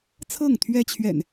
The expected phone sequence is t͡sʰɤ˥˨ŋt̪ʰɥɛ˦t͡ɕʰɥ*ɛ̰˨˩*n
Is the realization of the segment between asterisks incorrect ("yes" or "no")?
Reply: no